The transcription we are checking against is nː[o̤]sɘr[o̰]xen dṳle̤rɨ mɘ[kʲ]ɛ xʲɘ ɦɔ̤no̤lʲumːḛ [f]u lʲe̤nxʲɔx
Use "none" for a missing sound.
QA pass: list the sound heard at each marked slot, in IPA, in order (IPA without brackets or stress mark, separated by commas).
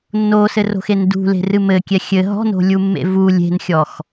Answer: o, o̤, kʲ, v